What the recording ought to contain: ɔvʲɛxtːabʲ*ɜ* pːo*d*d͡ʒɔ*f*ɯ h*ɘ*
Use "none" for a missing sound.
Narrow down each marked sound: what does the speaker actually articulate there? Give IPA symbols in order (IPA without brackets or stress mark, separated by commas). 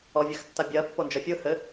ɜ, n, fʲ, ɘ